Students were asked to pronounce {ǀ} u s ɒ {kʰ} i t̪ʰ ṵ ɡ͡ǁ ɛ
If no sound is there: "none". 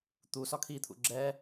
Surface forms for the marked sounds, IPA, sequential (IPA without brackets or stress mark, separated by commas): t̪, kʰ